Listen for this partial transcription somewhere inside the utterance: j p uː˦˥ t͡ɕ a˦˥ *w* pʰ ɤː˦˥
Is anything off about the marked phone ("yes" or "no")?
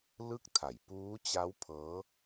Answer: no